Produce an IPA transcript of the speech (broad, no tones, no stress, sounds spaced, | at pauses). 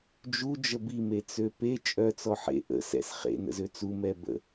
d͡ʒ u d͡ʒ ə b i m e t͡s ø p e t͡ʃʼ œ t͡s ɔ ħ ḛ ʔ ə̰ s ɛ̰ s χ ḛ n ə̰ z ø t͡s u m ɛ b ə̰